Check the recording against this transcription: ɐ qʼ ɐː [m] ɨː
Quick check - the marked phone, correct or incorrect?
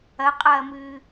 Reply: correct